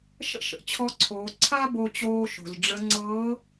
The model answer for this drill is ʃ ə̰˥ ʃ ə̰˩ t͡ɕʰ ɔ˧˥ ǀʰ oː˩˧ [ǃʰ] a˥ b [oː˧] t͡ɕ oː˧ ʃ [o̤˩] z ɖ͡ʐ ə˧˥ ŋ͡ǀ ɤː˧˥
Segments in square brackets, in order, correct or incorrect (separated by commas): incorrect, incorrect, correct